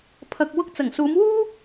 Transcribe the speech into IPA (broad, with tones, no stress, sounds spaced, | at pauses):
pʰ ɐ˧ k̚ w ʊ˧ k̚ t͡s ɐ˨˩ ŋ s uː˨˧ m w uː˥